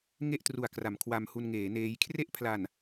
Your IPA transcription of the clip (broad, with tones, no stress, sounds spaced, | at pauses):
ŋ e˥˩ ʔ t r u˨˩ a̯ k r a˩˦ m kʰ w a˧ m h u˧ n ŋ eː˩˦ n eː˦˥ j kʰ r e˥˩ ʔ pʰ l a˨˩ n